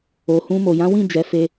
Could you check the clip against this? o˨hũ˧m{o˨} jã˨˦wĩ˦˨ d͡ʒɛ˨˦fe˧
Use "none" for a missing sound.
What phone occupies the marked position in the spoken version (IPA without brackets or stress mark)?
o˨